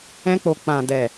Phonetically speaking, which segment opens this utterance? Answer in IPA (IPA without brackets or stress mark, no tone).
ɛ̃